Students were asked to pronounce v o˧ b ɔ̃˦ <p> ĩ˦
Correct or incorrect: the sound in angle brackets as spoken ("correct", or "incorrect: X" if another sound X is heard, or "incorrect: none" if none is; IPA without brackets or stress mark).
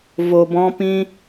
correct